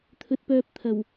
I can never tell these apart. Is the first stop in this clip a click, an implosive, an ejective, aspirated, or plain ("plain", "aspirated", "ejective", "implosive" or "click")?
aspirated